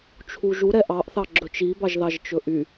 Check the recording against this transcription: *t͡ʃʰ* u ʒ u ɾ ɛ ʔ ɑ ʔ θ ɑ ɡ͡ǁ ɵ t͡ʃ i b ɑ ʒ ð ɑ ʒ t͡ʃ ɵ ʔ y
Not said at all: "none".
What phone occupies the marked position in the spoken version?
t͡ʃʰ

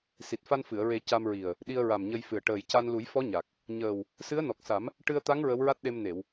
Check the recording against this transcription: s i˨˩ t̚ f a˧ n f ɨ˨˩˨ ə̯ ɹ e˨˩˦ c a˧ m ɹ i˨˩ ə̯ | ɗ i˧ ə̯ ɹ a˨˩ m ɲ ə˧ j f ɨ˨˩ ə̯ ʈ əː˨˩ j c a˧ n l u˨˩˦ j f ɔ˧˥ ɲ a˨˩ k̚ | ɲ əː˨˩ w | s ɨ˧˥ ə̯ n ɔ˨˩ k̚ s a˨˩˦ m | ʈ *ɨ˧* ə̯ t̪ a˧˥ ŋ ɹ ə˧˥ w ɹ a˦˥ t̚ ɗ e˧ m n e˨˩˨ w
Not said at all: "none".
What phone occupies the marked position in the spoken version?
ɨ˧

